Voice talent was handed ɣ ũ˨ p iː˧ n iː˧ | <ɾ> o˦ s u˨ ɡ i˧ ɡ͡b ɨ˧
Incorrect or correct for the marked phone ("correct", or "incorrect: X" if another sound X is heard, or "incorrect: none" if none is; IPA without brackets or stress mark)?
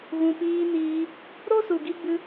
correct